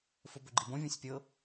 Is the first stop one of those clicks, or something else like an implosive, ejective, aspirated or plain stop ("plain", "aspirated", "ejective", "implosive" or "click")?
plain